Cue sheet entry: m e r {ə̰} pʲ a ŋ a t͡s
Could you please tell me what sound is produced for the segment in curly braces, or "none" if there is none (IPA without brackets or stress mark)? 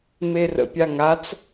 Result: ə̰